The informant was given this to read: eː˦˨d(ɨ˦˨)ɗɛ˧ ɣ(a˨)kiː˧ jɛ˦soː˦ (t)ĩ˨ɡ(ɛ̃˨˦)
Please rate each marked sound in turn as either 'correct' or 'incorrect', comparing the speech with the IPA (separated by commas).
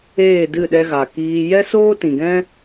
correct, correct, correct, incorrect